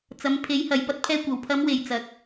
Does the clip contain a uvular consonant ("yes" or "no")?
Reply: no